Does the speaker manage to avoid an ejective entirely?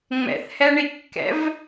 yes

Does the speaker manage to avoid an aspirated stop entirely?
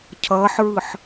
no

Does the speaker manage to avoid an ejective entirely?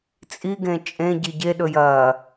no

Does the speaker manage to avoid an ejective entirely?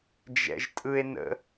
no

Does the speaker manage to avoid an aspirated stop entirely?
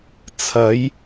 no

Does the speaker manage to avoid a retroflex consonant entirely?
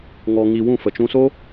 yes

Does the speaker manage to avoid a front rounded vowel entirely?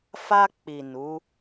yes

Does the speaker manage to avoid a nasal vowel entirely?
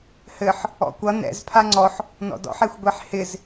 yes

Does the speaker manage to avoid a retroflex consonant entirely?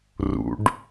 no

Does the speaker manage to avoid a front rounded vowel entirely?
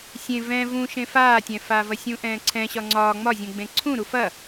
yes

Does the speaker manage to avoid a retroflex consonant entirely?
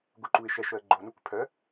yes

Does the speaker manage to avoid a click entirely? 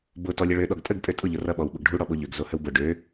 yes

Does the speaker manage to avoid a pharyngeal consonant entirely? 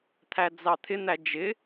yes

